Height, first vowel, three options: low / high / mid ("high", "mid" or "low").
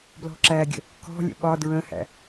mid